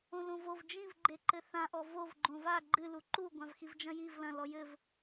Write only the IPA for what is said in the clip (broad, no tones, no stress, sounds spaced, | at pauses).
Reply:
õ l õ v o v d͡ʒ ĩ v ɡ͡ǃ e ǃ ɘ θ ã ʔ ɔ v o v ɡ͡ǃ õ v a ɡ͡ǃ ɨ l u ǃ u ɡʷ ã v x i v d͡ʒ ɐ̃ j i v l ɐ̃ l ɔ j ɘ v